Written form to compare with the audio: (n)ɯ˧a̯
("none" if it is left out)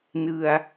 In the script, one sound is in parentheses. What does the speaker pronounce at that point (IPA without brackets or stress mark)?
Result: n